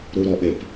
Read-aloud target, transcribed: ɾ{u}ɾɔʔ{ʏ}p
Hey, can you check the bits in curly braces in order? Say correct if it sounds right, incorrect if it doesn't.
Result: correct, incorrect: ɪ

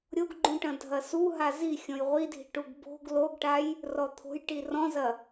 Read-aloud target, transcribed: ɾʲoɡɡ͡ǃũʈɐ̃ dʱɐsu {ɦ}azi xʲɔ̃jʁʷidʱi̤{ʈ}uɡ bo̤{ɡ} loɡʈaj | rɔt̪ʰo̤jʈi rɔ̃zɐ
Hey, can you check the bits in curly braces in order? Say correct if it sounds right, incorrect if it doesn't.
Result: correct, correct, correct

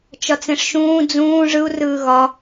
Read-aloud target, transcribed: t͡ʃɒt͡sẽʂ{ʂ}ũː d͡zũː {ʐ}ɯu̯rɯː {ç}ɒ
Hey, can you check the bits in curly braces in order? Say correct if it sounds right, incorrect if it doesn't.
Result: incorrect: ʃ, correct, incorrect: ɣ

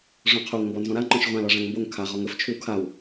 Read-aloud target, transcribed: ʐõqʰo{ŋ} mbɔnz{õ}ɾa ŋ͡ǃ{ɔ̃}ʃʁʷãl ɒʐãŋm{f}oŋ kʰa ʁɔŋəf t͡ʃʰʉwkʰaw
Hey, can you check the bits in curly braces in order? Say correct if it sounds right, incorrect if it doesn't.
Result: correct, incorrect: ɔ̃, correct, incorrect: b

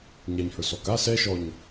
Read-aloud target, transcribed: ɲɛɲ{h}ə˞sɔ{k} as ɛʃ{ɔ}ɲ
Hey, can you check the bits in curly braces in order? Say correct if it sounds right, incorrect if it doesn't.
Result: correct, correct, correct

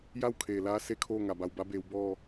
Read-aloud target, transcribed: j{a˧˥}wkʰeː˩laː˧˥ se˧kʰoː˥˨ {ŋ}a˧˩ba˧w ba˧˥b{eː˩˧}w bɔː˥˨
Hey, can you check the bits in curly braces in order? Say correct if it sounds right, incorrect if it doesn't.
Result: incorrect: a˥˨, correct, correct

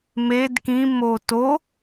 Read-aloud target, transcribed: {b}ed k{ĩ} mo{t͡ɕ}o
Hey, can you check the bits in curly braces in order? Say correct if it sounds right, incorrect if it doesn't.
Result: incorrect: m, correct, incorrect: t

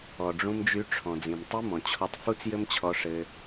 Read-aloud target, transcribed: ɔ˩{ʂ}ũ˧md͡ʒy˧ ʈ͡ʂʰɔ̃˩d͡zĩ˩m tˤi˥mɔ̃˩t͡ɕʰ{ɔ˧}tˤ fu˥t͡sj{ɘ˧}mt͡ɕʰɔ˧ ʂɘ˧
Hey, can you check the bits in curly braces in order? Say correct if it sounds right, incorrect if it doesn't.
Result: incorrect: ɖ͡ʐ, correct, incorrect: ɘ˥

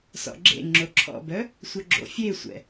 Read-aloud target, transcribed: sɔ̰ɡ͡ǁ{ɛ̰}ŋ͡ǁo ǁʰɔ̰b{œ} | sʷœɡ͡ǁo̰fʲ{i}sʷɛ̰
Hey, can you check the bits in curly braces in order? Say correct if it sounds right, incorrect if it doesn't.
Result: incorrect: ḛ, correct, incorrect: e

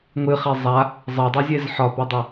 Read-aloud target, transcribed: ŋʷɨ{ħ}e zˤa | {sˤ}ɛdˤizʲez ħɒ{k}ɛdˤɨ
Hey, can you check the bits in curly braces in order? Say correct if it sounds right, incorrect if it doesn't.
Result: incorrect: χ, incorrect: zˤ, incorrect: p

